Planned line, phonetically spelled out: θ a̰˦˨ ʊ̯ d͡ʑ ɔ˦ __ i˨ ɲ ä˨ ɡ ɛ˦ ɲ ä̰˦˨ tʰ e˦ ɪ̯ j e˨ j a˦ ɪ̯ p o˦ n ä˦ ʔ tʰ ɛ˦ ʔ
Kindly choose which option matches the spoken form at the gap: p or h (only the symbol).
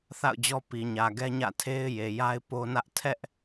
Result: p